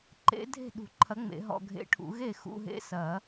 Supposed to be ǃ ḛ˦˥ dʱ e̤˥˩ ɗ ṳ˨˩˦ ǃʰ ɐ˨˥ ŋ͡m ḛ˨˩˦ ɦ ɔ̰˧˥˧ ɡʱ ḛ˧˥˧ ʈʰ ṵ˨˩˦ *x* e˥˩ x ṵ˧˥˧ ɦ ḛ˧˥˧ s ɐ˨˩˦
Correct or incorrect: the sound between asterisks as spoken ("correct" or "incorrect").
incorrect